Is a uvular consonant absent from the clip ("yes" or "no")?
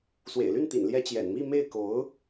yes